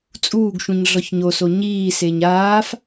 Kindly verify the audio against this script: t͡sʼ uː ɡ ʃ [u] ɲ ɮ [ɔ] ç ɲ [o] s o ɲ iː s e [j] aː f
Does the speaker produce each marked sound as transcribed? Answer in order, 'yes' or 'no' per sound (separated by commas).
no, yes, yes, no